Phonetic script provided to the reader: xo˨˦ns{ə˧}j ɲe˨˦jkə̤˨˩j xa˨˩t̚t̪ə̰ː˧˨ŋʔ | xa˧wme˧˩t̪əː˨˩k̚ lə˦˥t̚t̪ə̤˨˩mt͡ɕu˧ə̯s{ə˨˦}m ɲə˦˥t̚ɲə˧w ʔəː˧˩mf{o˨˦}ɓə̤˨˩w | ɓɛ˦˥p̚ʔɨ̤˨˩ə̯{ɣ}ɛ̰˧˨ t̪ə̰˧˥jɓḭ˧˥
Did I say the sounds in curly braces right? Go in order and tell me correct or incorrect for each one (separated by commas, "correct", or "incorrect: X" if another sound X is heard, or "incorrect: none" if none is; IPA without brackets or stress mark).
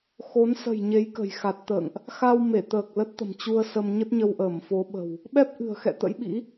incorrect: ə̤˨˩, incorrect: ə˧, correct, incorrect: x